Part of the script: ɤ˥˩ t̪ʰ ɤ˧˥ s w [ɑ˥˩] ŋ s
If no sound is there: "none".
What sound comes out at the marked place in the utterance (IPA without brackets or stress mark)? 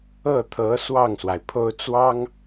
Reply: ɑ˥˩